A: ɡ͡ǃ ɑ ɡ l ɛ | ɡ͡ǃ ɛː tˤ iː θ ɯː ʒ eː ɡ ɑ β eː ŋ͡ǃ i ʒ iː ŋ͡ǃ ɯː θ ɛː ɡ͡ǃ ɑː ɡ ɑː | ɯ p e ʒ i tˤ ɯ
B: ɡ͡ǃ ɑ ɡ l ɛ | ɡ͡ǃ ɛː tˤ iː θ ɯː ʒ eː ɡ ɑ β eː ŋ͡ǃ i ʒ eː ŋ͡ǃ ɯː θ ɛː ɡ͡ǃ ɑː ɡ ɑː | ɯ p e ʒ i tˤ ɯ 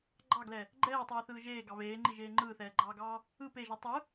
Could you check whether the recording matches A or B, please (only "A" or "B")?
B